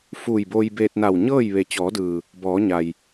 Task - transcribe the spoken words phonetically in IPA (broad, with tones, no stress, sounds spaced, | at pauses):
f uː˧˩ j b oː˧ j b eː˧ t̚ n a˧˩ w ɲ ɤː˥˨ j ʋ e˩ t͡ɕ ɔː˩˧ d ɯː˩ | b ɔː˩˧ ɲ a˩ j